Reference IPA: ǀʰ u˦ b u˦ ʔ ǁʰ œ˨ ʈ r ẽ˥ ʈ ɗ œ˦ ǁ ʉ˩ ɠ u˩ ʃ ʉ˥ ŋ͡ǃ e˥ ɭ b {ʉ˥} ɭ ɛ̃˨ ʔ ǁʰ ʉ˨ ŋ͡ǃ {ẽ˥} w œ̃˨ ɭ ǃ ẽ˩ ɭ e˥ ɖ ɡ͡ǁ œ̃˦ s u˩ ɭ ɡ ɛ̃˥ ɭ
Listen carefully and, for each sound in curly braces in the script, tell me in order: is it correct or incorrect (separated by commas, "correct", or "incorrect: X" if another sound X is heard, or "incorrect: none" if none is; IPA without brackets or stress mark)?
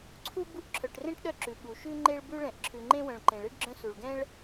correct, correct